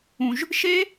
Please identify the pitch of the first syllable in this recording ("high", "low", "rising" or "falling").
high